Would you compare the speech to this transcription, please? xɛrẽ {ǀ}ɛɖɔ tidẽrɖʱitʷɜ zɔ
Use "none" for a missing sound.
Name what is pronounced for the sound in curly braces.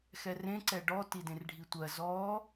ǀ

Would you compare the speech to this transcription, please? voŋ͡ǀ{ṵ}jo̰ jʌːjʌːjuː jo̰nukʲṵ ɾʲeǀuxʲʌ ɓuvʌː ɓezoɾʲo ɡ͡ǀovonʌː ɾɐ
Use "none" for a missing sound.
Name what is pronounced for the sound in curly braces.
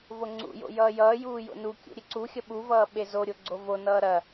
ṵ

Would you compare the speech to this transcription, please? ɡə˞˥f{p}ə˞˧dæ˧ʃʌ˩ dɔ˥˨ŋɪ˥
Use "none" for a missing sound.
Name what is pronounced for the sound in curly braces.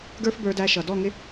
b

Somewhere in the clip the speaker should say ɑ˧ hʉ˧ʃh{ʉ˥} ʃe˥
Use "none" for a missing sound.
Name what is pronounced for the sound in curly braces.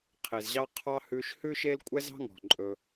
ʉ˥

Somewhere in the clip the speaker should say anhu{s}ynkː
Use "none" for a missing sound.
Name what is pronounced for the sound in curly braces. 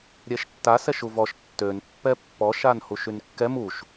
ʃ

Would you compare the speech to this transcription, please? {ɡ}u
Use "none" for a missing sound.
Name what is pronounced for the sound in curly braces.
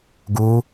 ɡ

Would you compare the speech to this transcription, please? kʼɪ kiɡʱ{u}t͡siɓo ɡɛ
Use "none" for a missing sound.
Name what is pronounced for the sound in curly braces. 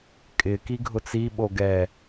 ʊ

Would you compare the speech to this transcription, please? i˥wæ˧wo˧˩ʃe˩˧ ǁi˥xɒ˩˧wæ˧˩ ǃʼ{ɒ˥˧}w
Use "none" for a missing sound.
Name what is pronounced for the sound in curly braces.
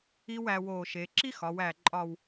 ɒ˥˧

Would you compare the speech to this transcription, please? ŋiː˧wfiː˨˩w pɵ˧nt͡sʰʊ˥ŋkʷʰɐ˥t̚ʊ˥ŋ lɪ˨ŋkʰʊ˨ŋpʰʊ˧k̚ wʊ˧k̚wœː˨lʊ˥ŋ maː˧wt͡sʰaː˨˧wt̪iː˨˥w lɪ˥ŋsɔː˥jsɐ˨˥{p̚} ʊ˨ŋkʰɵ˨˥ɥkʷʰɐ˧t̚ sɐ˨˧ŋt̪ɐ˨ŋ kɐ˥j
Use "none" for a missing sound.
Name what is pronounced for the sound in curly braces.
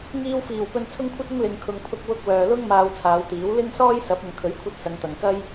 p̚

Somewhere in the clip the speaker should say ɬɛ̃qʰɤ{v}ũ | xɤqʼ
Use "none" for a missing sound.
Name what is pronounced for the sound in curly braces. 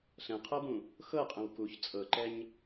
b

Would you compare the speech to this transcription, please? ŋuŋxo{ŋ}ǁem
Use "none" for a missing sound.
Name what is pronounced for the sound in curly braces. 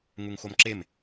m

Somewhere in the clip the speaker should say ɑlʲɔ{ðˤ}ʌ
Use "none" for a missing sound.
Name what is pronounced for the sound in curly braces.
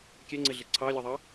ðˤ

